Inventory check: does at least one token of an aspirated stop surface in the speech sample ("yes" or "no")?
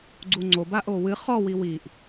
no